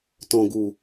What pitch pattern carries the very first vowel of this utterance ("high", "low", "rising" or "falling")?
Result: low